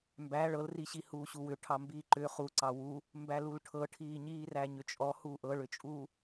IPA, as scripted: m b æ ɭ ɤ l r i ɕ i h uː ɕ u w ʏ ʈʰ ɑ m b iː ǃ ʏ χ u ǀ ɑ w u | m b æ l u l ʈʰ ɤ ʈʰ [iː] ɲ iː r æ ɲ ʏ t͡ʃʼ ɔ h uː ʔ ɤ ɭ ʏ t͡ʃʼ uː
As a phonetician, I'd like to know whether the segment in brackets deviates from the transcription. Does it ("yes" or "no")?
no